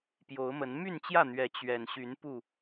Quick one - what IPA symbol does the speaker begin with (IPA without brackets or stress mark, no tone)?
p